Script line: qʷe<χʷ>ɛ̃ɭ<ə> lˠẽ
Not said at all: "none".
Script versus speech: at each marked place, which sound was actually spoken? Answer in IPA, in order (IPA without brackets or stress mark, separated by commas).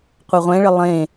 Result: ʁʷ, ə